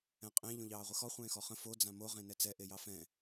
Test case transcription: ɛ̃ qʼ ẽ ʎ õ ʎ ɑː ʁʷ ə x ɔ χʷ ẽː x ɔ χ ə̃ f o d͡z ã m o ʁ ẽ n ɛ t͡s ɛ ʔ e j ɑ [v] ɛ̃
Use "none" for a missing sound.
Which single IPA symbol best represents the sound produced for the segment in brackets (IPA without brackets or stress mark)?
f